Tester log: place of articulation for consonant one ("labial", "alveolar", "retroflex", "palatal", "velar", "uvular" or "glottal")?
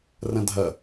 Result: alveolar